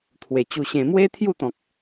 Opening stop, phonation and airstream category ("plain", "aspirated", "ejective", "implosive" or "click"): aspirated